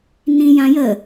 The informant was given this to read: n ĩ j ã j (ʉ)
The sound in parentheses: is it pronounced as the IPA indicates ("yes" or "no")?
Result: no